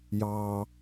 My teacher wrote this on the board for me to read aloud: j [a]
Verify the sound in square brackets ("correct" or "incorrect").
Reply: incorrect